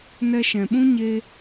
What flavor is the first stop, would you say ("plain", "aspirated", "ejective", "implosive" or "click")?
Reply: implosive